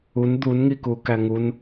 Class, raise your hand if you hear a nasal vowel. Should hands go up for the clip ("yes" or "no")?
no